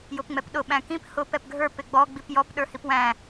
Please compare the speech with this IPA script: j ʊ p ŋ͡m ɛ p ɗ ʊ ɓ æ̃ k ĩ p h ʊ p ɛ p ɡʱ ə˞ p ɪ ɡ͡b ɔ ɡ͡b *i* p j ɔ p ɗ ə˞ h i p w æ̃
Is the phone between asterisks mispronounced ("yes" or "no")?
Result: no